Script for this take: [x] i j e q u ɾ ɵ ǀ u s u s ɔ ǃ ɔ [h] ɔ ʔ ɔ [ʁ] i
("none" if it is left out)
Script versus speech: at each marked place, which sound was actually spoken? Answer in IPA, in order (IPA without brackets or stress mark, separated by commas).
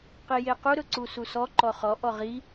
q, χ, ʁ